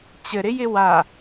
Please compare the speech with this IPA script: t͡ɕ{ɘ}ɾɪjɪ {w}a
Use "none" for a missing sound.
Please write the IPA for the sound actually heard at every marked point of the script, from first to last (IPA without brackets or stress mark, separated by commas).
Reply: ɘ, w